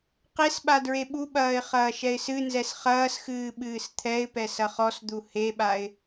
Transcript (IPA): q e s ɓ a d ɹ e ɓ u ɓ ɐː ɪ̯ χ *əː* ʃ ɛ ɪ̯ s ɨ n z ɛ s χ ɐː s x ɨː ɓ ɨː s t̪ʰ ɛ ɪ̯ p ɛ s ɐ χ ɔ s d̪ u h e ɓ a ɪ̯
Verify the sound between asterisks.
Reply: incorrect: ɐː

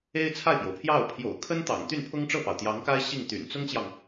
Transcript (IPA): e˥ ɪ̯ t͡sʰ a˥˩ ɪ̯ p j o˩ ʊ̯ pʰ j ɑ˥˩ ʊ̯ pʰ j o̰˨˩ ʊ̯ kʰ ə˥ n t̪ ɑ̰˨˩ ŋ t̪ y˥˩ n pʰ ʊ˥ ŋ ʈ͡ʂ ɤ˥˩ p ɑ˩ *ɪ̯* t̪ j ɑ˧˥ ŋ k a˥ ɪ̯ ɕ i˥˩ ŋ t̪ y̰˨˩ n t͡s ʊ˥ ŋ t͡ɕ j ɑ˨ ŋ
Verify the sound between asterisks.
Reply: incorrect: ʊ̯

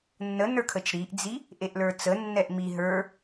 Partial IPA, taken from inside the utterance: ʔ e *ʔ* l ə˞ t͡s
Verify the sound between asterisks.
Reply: correct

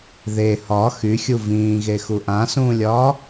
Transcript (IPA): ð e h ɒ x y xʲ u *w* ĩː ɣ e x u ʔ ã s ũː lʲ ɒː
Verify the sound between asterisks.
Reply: incorrect: v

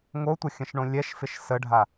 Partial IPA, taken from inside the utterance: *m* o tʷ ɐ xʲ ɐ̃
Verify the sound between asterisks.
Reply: incorrect: ŋ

